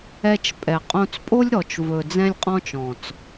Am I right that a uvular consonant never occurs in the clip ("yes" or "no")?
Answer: no